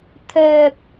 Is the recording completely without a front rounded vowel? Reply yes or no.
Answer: no